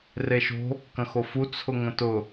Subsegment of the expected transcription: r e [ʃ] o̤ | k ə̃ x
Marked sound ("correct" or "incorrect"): correct